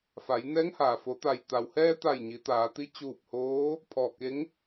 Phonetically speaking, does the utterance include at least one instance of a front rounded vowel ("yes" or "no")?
no